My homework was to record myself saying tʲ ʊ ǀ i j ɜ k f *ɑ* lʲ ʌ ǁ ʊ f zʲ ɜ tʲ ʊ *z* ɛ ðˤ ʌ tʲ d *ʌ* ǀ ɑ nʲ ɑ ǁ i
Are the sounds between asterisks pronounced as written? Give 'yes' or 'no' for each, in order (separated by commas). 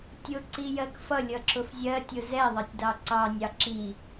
no, yes, no